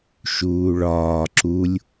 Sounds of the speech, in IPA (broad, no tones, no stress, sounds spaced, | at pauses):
ʃ uː ɭ ɒː ǁ u lʲ